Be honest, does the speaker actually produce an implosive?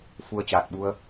yes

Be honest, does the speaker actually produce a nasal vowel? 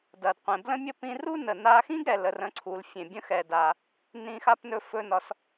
yes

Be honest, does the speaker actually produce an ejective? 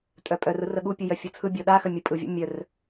yes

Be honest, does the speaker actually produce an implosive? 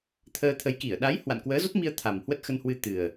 yes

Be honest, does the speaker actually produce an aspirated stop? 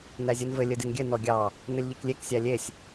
no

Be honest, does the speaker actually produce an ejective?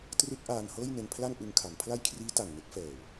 no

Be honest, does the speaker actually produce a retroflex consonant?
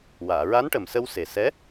yes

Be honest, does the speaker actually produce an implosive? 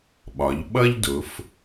yes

